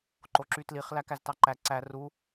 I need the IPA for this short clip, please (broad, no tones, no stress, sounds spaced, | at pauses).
ǃ o ǁ y t l i χ l æ k æ z t ɑ ǃ æ ǀ æ r u